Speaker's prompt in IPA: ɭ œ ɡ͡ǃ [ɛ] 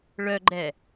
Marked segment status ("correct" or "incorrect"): correct